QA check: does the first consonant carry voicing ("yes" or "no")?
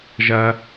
yes